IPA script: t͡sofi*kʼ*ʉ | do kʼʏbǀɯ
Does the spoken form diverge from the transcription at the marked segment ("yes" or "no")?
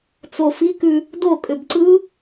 yes